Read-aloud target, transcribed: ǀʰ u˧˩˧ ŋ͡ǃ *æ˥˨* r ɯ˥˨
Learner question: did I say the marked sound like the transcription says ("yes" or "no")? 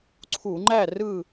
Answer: yes